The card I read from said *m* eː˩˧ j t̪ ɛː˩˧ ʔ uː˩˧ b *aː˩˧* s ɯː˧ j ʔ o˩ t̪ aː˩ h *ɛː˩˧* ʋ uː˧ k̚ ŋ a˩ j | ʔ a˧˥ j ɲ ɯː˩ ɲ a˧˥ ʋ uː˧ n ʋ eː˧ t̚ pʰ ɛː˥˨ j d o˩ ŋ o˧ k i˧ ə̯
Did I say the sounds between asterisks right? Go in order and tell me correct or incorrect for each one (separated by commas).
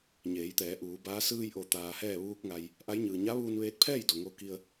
incorrect, incorrect, incorrect